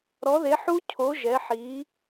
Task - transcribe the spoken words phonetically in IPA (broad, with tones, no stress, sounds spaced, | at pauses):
ɾ ɔ˨˥ ð e˨˥ ħ u˦˥ cʰ o˨˥ ʒ ɛ˨˥ ħ i˨˥